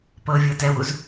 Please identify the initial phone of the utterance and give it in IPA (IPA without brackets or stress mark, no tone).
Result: p